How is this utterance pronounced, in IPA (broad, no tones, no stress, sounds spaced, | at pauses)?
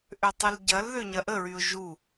ʔ ø tˤ ʊ l ɟ ɐ l ð ø ɲ ɐ ʔ ə ɹ y ʊ̯ ʒ u